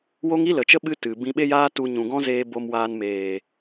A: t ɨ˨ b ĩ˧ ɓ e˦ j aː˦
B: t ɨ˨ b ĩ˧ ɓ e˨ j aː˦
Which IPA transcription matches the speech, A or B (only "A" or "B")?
A